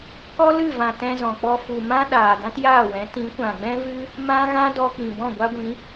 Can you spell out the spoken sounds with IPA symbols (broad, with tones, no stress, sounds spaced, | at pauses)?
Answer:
k ɔ˦ l ɨ˦˨ v ã˨ t ɛ̃˧ z ɔ̃˨ k͡p ɔ˧ f u˨ m ã˦ ɗ aː˨ d ã˦ t j aː˦˨ w ɛ̃˨˦ t ĩ˨˦ kʷ ã˨ ɡ͡b ɛ̃˦ v ɨ˦ | m ã˦ ɣ ã˦ d ɔ˧ k͡p ĩ˨ b ɔ̃˦˨ ɡʷ a˦ ɡʷ ĩ˨˦